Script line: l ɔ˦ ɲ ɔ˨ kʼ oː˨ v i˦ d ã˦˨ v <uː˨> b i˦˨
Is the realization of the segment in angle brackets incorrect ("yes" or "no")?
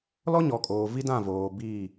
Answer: yes